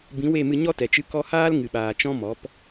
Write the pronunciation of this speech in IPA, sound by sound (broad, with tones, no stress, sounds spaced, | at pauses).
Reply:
b ĩ˨˦ w e˦˨ m ɨ˧ ɲ ɔ˦ t ɛ˨ t͡ʃ ɨ˧ k ɔ˧ h aː˦ l ŋ ɨ˨ ɓ aː˨ t͡ʃ ɔ̃˦ m ɔ˨˦ p